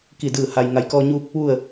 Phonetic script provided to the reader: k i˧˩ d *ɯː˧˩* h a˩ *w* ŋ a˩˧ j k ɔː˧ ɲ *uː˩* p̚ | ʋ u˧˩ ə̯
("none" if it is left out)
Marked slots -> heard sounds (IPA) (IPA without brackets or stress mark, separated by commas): ɯː˧˩, j, uː˧